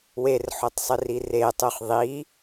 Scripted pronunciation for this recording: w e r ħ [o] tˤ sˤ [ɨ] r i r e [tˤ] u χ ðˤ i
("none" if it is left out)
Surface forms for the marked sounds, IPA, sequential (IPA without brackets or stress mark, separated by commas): o, ɨ, tˤ